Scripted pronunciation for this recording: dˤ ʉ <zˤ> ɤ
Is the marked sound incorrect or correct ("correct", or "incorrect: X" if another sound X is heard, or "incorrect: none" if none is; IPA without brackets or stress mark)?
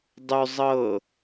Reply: correct